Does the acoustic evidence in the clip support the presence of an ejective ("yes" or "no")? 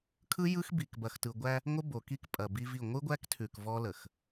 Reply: yes